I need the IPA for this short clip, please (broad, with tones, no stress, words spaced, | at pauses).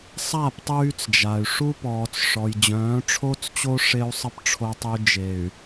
sˤa˦˨p tˤyː˦t͡sd͡ʒa˨y̯ ʂu˦pɔː˨t͡s ʂɔ˨jd͡ʑœ̃ː˨˦ʈ͡ʂʰo˦t͡st͡ɕo˦ ʂe˦u̯sˤə˦p ʈ͡ʂʰo˨tˤy˨ d͡ʒe˨y̯